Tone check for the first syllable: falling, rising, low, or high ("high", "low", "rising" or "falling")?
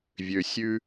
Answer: low